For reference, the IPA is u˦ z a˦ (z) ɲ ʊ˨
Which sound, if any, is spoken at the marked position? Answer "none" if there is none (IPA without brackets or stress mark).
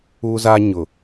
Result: none